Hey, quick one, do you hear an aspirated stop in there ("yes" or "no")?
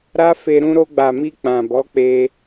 no